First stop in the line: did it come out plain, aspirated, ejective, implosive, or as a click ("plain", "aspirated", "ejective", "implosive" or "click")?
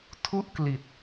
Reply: aspirated